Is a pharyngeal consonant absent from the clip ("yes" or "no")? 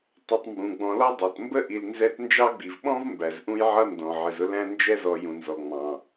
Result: no